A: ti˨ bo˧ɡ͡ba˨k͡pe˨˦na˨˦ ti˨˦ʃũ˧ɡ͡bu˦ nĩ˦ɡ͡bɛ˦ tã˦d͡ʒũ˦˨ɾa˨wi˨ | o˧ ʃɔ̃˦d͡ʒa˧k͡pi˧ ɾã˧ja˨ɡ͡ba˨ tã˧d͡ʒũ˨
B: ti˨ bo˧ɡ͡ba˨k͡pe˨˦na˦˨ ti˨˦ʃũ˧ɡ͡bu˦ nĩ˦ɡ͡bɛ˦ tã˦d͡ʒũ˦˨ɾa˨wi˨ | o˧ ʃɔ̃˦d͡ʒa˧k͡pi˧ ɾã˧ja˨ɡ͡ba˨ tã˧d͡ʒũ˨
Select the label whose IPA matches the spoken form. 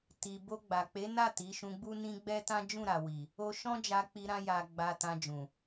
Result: B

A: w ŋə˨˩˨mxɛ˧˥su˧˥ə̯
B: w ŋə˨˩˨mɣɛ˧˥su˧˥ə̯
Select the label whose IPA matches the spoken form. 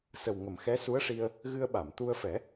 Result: A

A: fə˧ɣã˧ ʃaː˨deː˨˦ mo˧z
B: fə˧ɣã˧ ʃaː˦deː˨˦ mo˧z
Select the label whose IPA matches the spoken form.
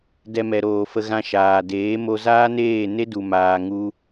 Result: A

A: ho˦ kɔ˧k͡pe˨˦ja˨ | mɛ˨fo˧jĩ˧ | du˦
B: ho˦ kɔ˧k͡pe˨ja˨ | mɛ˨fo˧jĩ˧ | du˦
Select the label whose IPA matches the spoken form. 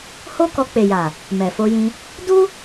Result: B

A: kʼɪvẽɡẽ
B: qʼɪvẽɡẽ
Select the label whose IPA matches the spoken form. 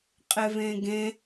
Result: B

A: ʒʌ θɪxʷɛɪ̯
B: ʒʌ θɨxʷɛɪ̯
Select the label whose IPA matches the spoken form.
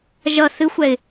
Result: B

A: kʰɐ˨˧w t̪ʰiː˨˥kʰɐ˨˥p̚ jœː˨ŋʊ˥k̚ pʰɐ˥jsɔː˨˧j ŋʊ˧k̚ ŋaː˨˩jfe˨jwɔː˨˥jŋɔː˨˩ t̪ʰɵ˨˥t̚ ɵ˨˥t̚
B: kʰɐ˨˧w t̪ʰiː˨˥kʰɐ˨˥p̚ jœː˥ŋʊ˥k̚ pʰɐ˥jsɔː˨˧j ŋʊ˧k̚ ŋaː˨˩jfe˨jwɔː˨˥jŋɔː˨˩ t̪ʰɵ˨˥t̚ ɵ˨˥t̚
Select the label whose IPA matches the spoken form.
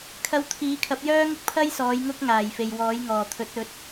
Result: B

